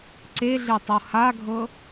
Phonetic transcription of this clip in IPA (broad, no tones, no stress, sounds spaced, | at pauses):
ǀ e ɮ e tˤ ɤ h a ɡʱ ɤ